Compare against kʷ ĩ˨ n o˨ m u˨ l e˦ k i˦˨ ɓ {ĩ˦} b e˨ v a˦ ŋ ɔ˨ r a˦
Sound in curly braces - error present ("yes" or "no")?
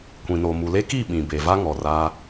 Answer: yes